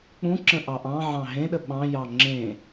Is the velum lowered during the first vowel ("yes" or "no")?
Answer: yes